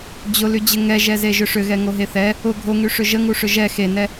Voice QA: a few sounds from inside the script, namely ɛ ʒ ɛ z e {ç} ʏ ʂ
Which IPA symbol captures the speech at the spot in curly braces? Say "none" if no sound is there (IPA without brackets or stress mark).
ʒ